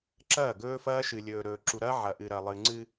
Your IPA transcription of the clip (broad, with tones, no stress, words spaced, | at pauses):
ǁɐː˦˨ɡɵː˦fɐː˦ ʃɨ˨lʲɵː˨ ɾɵː˨ǁu˨ɾɐː˦ ʕɐ˨ʔɨ˨ɾɐ˨lˠɨ˨ ŋ͡ǀɨ˦